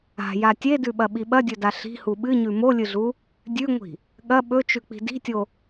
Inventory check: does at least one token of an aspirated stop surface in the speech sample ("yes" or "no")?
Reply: no